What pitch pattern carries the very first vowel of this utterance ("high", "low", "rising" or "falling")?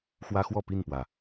high